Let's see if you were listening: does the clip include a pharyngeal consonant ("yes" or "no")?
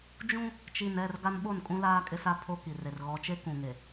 no